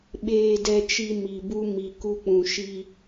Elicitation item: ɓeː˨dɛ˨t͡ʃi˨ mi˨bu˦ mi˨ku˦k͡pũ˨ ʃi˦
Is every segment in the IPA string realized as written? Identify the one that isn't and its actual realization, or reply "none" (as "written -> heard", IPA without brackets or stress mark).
none